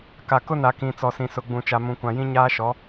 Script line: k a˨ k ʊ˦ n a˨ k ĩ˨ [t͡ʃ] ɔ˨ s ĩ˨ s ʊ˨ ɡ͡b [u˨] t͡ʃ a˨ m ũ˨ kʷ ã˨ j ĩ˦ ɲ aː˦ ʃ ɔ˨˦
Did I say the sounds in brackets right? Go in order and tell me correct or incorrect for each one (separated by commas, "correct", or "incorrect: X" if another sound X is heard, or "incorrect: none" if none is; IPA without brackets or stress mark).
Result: incorrect: t͡s, incorrect: ũ˨